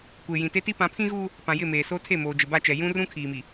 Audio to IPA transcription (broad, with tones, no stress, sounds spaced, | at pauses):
kʷ eː˨ j ĩ˨ t e˦ t i˦ p ã˨˦ pʰ ĩ˦ ɣ uː˦ | p ã˨ j ɪ˦˨ m eː˨ s oː˦ tʰ e˦˨ m oː˨ d͡ʒ ɪ˨ b a˦˨ t͡ʃ ɛ˨ j ũ˦ r ũ˦ kʰ iː˨ m i˨